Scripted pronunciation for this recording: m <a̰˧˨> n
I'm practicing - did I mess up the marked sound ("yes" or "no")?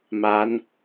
yes